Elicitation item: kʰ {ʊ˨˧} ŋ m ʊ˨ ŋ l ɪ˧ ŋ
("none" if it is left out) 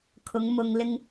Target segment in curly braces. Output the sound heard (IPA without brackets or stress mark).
ʊ˨˧